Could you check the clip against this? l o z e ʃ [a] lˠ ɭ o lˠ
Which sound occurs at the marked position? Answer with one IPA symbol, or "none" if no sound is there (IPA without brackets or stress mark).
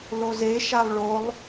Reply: a